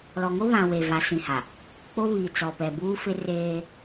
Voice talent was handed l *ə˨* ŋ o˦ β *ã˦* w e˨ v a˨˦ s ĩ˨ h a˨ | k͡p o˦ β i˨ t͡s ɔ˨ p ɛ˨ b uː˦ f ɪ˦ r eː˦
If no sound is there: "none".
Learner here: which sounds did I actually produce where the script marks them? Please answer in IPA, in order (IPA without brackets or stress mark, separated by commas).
ɔ˨, ã˨